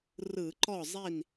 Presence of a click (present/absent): present